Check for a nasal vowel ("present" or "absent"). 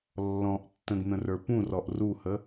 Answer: present